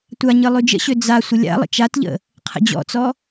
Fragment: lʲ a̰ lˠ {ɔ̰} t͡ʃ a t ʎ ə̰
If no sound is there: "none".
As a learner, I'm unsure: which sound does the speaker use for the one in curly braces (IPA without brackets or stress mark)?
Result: ə̰